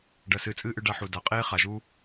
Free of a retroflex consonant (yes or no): no